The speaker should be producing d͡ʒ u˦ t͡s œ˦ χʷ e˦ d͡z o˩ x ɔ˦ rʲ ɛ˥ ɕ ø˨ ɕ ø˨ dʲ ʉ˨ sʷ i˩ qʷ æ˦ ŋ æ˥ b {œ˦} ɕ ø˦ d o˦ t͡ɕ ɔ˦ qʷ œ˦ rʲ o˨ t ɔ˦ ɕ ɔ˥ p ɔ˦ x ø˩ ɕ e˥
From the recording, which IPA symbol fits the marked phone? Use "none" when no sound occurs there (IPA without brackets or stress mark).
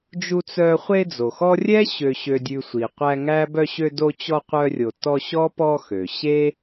œ˦